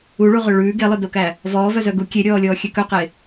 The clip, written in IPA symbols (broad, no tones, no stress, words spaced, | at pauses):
uɭuʁø ɭʉː ɡelˠœdokæ | vɔːvœzœ ɡu kʲeɾʲɔːlʲɔːxʲø kœqe